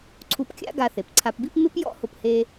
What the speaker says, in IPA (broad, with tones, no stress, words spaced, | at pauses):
ǀʰu˧pkʲa̰˥ ɡa˧θe˩pǀʰa˧pbi˥p mɪ˥pjɔ̰˥hʊ˧phe˧